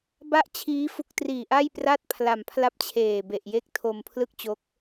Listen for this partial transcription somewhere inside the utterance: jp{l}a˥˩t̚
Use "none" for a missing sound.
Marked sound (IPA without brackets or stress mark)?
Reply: r